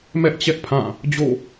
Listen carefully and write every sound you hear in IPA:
mɛ˦ʔt͡ɕɛ˦ʔpʰã˦˨ | d͡ʑo̰˦˨

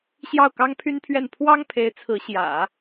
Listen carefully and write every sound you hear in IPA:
ɕjɑ˥˩ʊ̯kɑ˥ŋpʰy˥npʰɥɛ˥˩n pʰwɑ˥ŋpʰe˧˥ɪ̯ t͡sʰɹ̩˧˥ɕjä̰˨˩˦

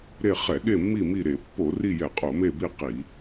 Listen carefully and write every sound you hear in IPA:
ɾe˦˨ χɛ˧˩˧ɠe˦˨mːi˦˨mi˦˨ ɾe˧˩˧pːo˧˩˧ri˦˨jɛ˧˩˧ qʼo˧˩˧me˦˨bi˦˨ qi˧˩˧

